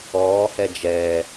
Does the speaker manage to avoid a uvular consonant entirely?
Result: yes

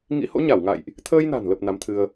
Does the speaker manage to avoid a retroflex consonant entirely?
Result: yes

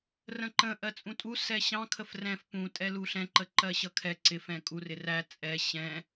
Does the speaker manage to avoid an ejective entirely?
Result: no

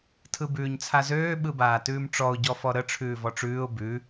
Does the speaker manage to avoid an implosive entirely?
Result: no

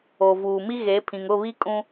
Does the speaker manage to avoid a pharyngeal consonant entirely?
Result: yes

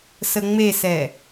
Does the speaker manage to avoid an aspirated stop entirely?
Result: yes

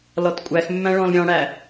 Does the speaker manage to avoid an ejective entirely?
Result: no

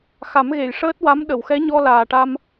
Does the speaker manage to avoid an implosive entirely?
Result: no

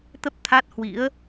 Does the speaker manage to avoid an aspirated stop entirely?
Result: no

